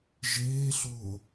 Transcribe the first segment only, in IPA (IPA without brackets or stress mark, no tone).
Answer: ʒ